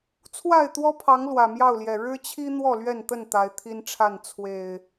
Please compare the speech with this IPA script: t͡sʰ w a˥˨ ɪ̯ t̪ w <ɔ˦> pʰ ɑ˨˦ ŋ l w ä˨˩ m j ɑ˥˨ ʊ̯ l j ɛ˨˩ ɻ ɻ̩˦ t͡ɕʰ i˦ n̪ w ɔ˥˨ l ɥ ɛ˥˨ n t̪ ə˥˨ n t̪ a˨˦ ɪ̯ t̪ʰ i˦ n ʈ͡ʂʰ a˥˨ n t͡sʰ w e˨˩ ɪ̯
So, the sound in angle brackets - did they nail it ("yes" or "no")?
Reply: yes